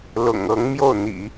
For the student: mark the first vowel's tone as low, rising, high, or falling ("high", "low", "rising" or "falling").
low